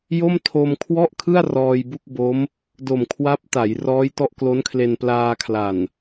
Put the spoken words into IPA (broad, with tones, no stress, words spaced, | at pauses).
jo˥˩m tʰo˧m kʰwɔ˥˩ʔkʰɯ˥˩a̯ rɔː˧jbu˥˩k̚bo˦˥m | do˨˩mkʰwa˦˥p̚ta˩˦j rɔː˦˥jtɔ˦˥ʔklo˦˥nkʰle˧n plaː˧kʰla˨˩n